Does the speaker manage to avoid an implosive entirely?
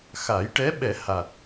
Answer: no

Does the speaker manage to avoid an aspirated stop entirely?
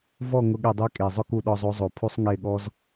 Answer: no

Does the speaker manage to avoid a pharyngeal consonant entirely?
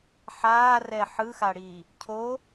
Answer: no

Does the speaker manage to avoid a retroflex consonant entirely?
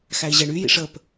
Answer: no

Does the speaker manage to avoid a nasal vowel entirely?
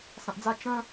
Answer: no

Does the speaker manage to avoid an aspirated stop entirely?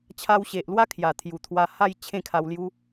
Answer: no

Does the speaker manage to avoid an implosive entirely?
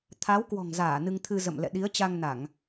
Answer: no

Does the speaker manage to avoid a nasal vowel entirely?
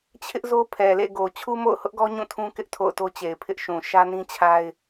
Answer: no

